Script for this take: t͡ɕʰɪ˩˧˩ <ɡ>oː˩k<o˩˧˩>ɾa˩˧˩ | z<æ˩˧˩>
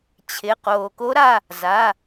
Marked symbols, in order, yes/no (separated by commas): no, no, no